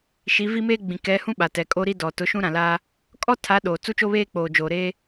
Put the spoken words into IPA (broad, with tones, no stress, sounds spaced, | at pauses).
ʃ i˨˦ v i˦ m eː˦ ɡ͡b ĩ˨ k ɛ˨˦ h ũ˦ ɓ a˨ t ɛ˨ kʼ o˦ ɾ i˦ d ɔ˨ t ʊ˨˦ ʃ ũ˦ ɾ ã˨ l aː˦ | kʼ ɔ˦ tʰ a˨˦ ɗ oː˨ t͡s u˦ t͡ʃ o˦ β eː˦ k͡p oː˨ d͡ʒ oː˨ ɾ eː˦